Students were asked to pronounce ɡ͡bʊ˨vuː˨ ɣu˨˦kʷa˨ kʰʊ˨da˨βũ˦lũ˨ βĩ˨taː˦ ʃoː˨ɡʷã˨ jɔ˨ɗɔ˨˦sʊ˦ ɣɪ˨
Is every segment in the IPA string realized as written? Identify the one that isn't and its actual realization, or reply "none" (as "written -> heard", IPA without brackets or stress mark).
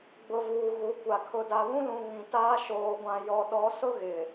none